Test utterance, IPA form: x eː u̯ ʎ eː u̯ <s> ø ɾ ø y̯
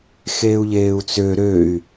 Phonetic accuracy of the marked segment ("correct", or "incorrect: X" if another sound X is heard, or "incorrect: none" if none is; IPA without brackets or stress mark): incorrect: t͡s